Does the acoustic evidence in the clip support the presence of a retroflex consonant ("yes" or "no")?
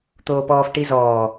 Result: yes